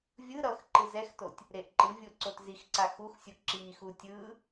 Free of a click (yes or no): no